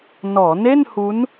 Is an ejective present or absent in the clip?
absent